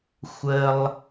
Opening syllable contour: low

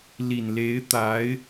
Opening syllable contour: low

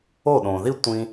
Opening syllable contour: falling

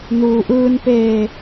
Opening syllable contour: low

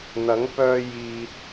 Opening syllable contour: rising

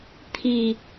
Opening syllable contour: low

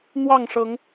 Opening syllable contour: falling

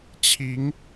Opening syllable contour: rising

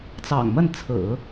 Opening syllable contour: low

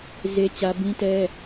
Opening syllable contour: high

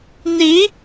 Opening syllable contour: rising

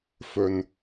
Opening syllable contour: low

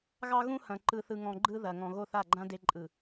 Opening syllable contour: high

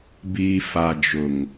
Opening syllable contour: low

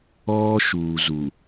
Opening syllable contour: high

